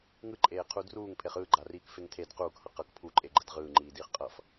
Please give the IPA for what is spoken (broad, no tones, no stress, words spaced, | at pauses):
ŋɯǃʼeːqʰu druːŋpʰeχ ɯːɡ͡ǃariːkfeŋ tʰed quːkhʌ qʌk pʰuǃʼeɡ͡ǃɛd ʁɯːŋ͡ǃiːdiːχ qʼʌf